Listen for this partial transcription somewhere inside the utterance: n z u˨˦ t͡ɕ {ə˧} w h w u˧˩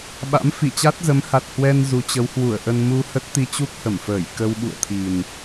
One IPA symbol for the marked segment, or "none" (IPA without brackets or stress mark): ə˨˦